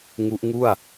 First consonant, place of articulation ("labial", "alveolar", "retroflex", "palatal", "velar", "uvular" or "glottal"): velar